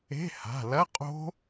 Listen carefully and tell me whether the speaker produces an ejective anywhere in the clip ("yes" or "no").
yes